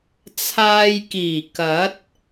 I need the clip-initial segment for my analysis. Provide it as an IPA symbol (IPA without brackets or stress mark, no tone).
t͡sʰ